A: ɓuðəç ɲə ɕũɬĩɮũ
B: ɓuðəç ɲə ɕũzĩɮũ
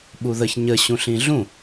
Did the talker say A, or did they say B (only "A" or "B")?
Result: A